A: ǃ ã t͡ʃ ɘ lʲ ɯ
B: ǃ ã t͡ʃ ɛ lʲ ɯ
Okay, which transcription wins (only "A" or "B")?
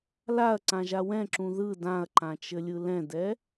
A